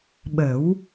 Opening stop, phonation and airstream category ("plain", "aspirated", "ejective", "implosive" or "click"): implosive